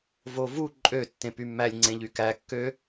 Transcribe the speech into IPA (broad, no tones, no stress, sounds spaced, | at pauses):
v o v u ǃʼ ø tː ẽ p y mː æ lʲ ŋ͡ǀ ẽ ʎ y k æ kː ø